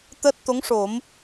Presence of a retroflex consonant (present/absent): present